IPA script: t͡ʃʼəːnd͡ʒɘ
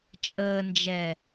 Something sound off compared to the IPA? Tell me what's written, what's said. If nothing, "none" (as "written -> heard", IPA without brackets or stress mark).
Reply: ɘ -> ɛ